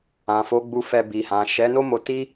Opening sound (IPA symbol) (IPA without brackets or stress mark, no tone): ã